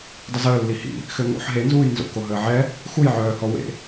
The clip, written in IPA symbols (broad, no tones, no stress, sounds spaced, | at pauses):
dˤ ə z əː lː i h ḭ | x ø ŋ o̰ ħ ɦ e n z uː j n z o̰ k o ɦ əː ʕ ɛ | x u j ʕ œː h ɔ w ḛ